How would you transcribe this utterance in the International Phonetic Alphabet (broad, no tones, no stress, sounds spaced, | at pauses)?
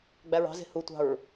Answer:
ɡ͡b æ ɹ ɑ̤ z e̤ h u tʷ ɑ̤ ɹ